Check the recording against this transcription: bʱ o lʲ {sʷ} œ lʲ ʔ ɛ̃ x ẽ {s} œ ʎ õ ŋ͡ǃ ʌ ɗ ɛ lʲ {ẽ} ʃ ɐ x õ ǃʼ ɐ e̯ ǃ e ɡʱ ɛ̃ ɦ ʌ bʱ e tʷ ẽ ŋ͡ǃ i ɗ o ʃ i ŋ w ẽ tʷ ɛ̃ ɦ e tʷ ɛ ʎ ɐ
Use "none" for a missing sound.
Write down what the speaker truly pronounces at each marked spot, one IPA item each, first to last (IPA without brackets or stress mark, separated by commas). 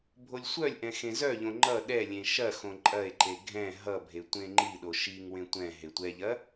sʷ, z, ẽ